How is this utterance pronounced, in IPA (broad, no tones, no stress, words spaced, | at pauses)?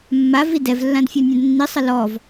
mːavi dɛvlːãdfʲɔnʲãd nːisˤə lɔv